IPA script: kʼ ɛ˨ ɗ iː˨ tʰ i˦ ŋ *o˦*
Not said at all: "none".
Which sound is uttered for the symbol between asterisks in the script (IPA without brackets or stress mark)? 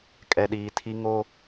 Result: o˦